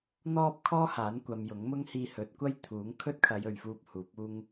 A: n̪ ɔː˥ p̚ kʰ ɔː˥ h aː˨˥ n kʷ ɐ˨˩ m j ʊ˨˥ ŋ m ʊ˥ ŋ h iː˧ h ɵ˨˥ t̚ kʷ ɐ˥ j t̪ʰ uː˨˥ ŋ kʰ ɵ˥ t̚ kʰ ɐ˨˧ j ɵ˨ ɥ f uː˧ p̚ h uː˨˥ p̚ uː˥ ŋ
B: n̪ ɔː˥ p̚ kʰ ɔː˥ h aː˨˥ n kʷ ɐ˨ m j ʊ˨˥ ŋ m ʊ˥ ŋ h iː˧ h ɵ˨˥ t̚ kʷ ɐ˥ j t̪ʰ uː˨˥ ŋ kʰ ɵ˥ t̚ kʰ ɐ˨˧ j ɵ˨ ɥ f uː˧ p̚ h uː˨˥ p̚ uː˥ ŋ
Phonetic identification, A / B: B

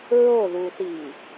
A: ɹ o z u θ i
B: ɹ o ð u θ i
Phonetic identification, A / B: B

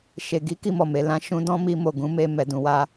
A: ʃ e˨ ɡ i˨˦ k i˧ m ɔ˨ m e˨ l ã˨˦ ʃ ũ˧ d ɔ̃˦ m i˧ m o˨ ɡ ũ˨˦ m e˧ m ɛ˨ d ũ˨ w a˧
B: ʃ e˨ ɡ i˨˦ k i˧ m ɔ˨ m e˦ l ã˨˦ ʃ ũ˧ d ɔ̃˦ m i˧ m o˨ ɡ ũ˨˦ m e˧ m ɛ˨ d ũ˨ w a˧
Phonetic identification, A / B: A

